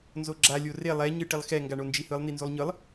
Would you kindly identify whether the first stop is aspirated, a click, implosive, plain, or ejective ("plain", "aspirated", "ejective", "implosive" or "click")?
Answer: click